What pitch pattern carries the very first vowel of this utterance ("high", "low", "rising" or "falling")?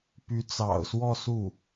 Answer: rising